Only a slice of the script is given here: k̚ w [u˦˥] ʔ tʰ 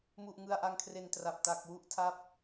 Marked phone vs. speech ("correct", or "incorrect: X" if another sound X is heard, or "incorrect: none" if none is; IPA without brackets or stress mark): incorrect: u˥˩